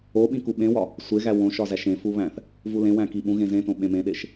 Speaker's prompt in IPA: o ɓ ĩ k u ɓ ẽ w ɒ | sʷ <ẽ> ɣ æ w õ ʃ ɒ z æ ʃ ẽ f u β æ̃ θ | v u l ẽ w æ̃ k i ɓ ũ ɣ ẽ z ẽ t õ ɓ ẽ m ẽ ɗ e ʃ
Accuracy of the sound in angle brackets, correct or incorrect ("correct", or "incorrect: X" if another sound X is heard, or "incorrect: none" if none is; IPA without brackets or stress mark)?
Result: incorrect: e